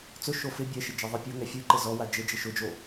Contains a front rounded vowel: no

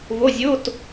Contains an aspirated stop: no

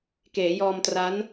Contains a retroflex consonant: no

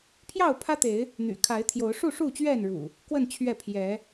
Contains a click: no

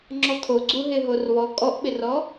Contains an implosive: yes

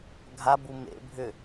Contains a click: no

